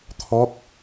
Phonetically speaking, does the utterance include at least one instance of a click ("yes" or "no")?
no